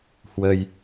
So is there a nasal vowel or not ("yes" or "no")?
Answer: no